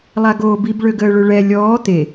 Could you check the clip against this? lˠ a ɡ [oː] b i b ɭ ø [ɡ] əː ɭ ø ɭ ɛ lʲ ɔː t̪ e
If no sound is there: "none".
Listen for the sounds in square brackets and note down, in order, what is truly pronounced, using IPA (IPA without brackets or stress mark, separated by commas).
oː, ɡ